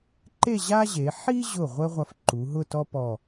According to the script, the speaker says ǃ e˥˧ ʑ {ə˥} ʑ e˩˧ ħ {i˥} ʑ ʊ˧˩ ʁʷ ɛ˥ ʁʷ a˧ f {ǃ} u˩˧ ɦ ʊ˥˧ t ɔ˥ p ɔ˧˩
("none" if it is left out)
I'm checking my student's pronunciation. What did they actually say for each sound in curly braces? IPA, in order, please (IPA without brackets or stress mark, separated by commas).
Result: a˥, i˥, ǃ